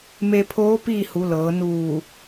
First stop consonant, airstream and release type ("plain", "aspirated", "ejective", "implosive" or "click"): aspirated